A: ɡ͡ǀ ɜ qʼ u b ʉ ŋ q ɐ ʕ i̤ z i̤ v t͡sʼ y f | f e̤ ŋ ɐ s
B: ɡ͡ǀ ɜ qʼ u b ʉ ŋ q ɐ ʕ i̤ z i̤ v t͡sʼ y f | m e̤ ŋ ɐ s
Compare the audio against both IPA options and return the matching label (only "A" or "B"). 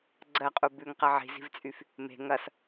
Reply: B